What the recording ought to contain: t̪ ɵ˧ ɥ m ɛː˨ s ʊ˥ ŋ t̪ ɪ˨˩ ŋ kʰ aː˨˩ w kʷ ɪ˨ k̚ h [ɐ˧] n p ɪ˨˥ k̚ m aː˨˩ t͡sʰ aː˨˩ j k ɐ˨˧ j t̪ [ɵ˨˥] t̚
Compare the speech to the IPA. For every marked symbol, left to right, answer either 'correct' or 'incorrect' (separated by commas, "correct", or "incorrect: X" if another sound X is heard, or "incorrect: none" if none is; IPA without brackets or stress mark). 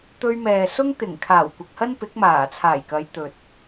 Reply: incorrect: ɐ˥, incorrect: ɵ˨